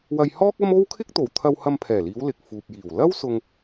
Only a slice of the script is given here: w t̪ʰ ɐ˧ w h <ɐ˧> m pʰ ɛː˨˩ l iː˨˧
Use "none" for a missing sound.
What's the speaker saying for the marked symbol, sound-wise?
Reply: ɐ˧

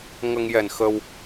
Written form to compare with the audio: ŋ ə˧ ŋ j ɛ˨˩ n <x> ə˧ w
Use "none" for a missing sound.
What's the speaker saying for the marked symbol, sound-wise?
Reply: x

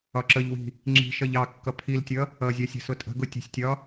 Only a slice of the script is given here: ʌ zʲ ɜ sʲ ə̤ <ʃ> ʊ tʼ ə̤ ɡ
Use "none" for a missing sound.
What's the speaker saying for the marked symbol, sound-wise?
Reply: s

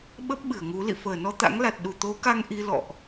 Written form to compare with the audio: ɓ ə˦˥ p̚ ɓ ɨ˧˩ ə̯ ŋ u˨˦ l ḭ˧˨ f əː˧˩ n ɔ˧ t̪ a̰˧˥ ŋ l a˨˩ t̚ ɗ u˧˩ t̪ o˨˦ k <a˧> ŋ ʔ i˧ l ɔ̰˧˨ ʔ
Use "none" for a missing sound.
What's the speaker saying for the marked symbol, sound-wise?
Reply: a˧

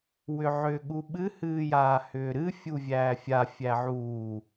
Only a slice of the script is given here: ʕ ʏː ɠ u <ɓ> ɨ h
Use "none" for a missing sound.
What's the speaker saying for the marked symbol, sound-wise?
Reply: ɓ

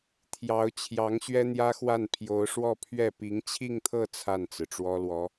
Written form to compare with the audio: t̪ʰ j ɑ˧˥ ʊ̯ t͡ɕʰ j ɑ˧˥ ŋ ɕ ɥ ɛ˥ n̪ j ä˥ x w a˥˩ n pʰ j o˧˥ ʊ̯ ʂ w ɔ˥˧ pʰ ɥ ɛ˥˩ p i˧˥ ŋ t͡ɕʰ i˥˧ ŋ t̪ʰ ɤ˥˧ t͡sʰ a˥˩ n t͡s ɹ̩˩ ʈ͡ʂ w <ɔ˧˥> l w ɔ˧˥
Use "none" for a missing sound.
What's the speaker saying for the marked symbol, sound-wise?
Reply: ɔ˥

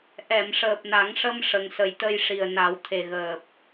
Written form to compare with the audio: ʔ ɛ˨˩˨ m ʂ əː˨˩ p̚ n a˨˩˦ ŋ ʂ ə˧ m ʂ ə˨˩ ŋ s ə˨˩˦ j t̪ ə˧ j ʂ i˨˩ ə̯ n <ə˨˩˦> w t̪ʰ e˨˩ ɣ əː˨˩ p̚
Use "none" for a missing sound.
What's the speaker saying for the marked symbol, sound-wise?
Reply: a˨˩˦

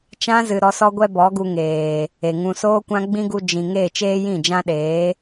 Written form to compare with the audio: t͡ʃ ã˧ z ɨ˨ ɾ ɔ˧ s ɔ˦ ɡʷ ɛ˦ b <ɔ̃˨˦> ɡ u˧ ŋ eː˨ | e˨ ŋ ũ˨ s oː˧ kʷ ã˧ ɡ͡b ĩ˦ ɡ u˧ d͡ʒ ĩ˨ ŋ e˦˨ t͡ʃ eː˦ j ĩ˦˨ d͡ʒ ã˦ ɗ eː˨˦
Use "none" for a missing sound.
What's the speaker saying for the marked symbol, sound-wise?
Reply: ɔ˨˦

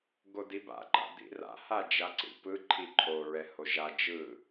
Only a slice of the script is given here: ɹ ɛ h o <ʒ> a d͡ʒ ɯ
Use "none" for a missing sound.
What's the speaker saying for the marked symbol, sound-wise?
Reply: ʒ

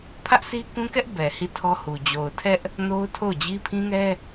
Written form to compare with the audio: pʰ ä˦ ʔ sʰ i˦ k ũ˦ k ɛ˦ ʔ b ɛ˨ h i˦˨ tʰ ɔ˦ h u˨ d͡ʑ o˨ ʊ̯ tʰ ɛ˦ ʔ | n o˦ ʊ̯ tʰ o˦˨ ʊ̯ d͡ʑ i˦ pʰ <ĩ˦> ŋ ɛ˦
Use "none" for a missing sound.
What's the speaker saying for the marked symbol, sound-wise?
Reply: ĩ˦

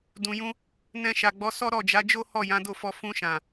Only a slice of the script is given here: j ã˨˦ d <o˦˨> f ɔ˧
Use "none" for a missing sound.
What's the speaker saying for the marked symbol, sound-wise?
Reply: o˦˨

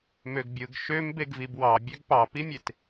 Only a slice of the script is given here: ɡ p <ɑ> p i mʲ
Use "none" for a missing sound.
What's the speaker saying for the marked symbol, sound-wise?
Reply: ɑ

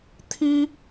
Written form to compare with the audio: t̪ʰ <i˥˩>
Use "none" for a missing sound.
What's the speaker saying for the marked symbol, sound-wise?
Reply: i˥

